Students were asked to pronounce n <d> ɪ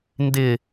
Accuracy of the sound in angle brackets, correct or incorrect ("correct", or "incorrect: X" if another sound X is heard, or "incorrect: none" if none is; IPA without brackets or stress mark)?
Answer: correct